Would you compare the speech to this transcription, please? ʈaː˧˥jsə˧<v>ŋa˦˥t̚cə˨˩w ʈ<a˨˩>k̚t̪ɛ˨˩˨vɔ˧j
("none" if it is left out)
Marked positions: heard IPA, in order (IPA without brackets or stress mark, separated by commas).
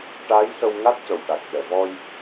w, a˨˩